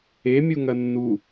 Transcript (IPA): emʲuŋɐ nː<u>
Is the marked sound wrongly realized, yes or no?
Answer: no